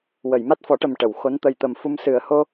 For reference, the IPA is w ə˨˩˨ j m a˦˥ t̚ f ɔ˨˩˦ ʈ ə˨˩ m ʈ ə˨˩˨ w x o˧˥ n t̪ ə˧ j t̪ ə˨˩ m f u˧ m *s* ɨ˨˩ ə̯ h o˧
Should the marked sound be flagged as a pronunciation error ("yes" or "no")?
no